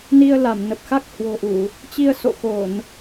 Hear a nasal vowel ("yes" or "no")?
no